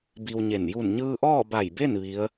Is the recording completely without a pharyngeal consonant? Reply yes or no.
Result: yes